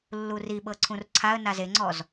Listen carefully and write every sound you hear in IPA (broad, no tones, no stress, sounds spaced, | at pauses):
lː u r i ɓ ɤ ǀʰ ũ r ǀʰ a ə̯ n a z e ŋ͡ǀ ɔ z